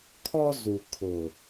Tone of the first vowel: high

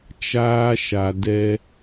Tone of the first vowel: high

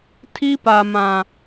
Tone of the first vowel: high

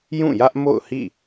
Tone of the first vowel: falling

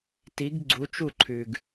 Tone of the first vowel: rising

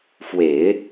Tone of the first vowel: low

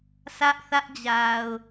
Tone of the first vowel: high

